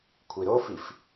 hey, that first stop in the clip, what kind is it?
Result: aspirated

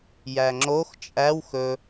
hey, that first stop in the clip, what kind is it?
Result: click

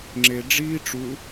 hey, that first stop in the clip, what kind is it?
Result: click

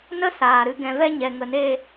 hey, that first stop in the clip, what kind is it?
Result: plain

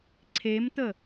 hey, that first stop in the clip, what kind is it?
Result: click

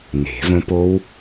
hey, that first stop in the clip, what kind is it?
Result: plain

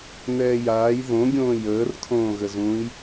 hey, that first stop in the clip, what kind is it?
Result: plain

